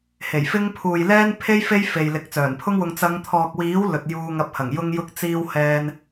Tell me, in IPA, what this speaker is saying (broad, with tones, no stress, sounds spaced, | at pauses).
h e˨˩ j f ɪ˥ ŋ pʰ uː˨ j l ɛː˥ n pʰ e˥ j f e˥ j f e˨ j l ɪ˨ k̚ t͡s œː˨˩ n pʰ ʊ˥ ŋ w ʊ˧ ŋ t͡s ɐ˨˧ ŋ t̪ʰ ɔː˨ k̚ w iː˨˥ w l ɵ˨ t̚ j uː˧ ŋ ɐ˧ p̚ h ɐ˨˩ ŋ j ʊ˧ ŋ j ʊ˧ k̚ t͡s iː˧ w h ɛː˧ n